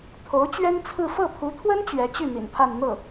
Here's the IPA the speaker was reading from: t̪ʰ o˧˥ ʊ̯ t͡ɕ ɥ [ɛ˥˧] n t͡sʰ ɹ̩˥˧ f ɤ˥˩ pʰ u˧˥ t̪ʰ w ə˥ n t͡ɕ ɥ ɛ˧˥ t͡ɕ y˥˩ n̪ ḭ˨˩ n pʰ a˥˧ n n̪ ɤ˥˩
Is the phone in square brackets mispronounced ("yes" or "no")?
yes